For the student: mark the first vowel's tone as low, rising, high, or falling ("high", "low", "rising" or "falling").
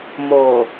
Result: low